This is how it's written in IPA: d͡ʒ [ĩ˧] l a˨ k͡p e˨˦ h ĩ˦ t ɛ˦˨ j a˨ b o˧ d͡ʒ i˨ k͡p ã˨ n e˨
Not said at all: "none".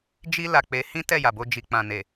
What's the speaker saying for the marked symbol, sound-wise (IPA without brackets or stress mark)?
i˧